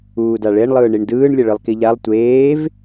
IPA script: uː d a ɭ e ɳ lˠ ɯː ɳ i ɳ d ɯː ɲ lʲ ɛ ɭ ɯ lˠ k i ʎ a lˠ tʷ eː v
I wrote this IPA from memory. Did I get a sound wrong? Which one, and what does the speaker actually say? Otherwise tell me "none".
ɲ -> ɳ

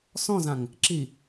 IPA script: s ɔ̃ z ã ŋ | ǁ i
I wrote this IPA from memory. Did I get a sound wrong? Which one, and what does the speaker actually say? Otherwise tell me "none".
none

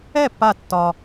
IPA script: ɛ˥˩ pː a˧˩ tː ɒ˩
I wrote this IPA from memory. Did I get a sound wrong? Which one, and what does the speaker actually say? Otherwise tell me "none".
none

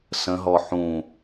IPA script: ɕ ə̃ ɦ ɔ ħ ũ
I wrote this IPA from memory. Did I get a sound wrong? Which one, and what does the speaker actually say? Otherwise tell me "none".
ɕ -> s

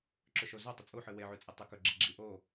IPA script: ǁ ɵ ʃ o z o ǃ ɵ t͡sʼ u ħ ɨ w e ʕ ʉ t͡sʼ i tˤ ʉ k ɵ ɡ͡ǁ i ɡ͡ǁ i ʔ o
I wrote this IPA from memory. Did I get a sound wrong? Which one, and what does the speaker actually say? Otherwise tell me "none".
ǃ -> tˤ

